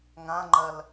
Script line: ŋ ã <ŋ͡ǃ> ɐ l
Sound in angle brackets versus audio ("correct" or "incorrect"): correct